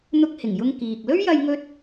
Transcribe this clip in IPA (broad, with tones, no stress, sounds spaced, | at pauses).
n̪ ʊ˧ k̚ h ɪ˨˩ ŋ j ʊ˧ ŋ k iː˨ k̚ l ɵ˥ ɥ j ɐ˧ j ŋ ɵ˧ t̚